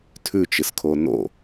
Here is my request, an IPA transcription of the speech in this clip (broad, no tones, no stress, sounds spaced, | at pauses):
tʰ ʉ t͡ʃ ɨ s kʰ o n o̰